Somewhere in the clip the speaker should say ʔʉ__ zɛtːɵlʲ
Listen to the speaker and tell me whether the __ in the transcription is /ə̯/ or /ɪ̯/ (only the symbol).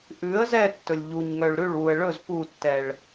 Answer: ə̯